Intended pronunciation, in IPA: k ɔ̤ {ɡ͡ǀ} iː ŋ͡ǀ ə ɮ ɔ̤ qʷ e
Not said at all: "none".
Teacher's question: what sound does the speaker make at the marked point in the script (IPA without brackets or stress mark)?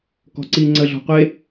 ǀ